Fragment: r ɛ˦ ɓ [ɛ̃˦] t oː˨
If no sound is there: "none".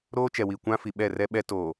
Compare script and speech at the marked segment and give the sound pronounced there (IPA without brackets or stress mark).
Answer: ɛ˦